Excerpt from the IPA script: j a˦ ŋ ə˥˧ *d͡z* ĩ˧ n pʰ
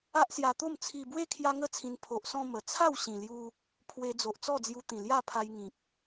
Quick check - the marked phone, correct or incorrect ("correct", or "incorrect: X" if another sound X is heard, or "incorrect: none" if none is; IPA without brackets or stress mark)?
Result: incorrect: t͡sʰ